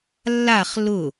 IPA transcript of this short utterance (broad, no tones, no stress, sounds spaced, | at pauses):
lː a χ l ʊ